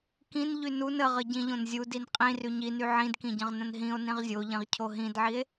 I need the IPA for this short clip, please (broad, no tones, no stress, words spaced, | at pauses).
kĩn ʎynun əʁə ɟĩʎõnzʲudin qʼĩry ɲiny ʕĩdkĩ ɟə̃ʁnə̃nɦĩo̯ nĩʁzʲoʎĩʁcʰo ɦĩdʕie̯